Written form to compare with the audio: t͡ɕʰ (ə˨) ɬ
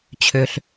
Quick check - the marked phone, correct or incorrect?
incorrect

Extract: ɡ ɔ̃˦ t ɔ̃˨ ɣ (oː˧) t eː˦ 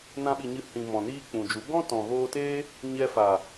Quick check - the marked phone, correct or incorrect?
correct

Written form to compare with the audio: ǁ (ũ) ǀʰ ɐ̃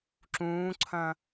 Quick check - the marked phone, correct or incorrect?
incorrect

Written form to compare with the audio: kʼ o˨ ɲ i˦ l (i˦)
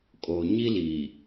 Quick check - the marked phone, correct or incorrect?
incorrect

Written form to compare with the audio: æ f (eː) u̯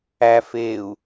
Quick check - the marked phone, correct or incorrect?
correct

